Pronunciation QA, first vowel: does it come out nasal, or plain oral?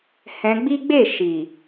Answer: nasal